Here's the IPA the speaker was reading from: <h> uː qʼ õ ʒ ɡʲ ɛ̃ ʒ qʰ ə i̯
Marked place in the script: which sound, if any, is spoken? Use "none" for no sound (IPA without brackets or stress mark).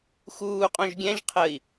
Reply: x